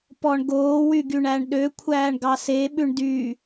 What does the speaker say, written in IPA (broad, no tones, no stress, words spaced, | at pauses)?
pɔɳɡoː wyɡyɳæɳɗø kʷʰæːɳɡɑse ɓʉɳdy